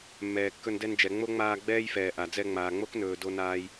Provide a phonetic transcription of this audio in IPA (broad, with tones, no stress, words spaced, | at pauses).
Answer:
mːɛː˨kːɵ˧n dɛ˧nd͡ʒɛ˨ ŋ͡mo˦ŋ͡maː˧ ɡ͡bɛː˦jfɛː˨ ʔa˨ d͡zɛ˧ŋ͡maː˨ ŋ͡mo˦knɵː˨ do˦naː˦j